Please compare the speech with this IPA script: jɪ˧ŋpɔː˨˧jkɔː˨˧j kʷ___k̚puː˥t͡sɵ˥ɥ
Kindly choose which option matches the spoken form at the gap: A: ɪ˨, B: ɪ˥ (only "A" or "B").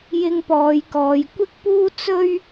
B